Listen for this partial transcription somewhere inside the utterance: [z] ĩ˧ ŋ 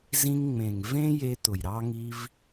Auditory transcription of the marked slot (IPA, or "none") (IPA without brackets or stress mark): z